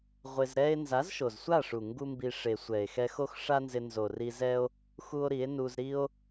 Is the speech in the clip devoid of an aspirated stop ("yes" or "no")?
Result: yes